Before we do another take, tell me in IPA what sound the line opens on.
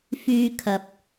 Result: f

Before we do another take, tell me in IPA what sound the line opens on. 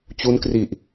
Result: t͡ɕ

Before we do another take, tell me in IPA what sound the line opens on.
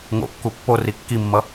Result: ŋ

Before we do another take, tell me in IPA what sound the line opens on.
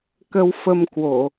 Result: k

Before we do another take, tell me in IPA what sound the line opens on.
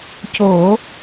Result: c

